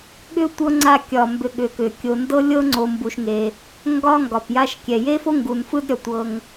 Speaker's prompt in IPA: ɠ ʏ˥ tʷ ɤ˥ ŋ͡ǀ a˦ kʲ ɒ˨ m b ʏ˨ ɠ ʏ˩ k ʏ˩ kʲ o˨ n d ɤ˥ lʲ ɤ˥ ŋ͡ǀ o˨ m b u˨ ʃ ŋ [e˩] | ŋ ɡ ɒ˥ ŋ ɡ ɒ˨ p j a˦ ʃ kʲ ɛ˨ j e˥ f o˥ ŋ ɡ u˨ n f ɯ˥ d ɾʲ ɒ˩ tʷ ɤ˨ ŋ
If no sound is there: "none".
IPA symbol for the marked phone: e˩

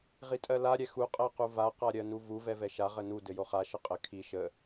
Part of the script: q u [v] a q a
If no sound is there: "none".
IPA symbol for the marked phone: v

